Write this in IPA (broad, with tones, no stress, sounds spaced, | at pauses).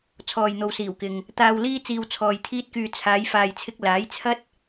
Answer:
t͡sʰ ɔː˨ j n̪ o˨ w s iː˨˩ w k ɪ˨ ŋ | t̪ aː˧ w l iː˥ t͡s iː˧ w t͡sʰ ɔː˨ j t̪ʰ iː˥ t̚ k yː˧ t͡sʰ aː˨˧ j f aː˨ j t͡sʰ ɪ˧ k̚ l aː˨˥ j t͡sʰ ɐ˥ t̚